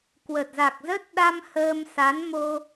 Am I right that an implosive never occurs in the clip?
no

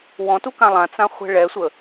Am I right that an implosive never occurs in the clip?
yes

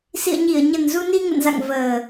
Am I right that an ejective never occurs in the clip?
yes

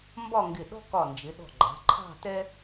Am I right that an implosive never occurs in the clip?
no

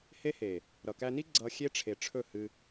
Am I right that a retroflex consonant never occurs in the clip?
no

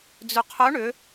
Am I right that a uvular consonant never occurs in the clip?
no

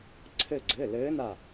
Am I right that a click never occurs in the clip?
no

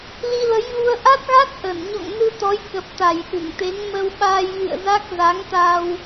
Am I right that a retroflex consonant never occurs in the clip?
yes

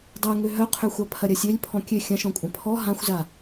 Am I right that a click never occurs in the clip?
yes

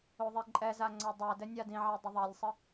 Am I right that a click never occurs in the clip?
no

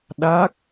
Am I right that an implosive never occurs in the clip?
no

